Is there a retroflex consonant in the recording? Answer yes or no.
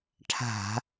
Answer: yes